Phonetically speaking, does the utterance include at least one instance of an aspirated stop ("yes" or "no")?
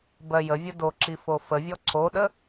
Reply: no